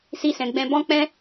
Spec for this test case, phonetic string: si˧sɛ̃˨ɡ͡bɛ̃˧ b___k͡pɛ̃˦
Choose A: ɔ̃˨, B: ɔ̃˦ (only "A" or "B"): B